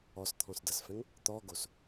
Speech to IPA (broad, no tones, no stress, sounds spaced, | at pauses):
ɔ s t̪ʰ ɔ̃ s d ʌ s f ɛ̃ ŋ | t̪ ɔ ɡ o s